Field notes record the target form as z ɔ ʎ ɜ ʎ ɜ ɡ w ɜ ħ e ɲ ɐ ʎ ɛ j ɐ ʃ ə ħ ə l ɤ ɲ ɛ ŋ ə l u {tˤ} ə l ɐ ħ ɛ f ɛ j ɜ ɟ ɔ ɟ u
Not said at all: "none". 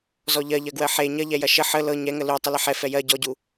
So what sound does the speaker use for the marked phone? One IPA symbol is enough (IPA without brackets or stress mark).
tˤ